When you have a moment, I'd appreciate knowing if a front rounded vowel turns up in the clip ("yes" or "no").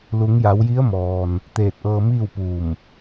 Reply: no